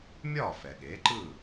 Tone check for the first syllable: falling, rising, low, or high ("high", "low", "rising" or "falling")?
falling